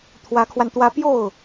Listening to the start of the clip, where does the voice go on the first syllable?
rising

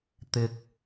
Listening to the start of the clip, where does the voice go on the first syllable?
high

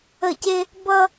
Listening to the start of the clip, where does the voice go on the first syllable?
falling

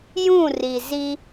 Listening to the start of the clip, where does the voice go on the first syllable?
falling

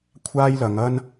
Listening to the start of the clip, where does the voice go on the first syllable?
high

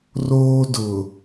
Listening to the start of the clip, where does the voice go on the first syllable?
high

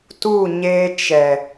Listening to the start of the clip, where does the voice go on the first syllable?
falling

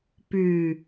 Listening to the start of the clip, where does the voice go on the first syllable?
low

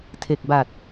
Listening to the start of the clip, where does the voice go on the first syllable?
low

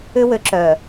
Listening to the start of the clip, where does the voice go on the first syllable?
high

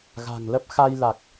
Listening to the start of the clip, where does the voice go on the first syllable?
low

